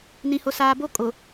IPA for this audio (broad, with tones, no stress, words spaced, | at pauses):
nĩ˨hʊ˨saː˨bo˦ kʼʊ˨